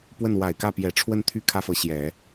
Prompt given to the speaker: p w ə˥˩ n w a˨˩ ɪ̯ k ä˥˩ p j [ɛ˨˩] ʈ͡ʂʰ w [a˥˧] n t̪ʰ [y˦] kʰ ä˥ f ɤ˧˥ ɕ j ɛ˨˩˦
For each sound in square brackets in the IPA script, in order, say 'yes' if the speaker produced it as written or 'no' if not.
yes, no, no

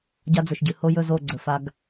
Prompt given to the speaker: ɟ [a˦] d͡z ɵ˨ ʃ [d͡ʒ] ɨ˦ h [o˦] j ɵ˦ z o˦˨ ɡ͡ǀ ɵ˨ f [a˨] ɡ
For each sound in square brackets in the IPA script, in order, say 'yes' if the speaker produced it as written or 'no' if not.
yes, no, yes, no

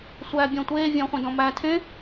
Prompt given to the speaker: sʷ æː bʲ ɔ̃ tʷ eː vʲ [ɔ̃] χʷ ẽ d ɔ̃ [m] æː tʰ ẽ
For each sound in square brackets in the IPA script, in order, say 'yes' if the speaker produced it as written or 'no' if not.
yes, yes

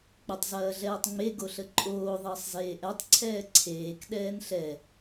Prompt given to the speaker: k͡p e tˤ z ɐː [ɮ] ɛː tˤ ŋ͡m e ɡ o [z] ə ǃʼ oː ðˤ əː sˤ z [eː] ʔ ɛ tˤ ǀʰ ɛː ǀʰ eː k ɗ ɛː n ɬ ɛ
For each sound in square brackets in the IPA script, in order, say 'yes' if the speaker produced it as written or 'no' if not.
yes, no, yes

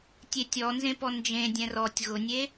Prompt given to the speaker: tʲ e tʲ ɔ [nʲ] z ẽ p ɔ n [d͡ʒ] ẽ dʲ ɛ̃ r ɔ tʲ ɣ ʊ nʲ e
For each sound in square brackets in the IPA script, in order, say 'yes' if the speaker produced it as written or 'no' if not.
no, yes

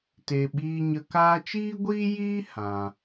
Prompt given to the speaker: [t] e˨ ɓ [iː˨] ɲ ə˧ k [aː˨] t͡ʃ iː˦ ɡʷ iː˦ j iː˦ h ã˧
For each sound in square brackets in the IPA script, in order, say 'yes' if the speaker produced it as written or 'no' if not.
yes, no, no

